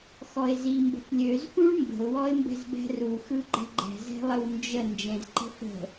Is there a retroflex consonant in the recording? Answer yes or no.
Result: yes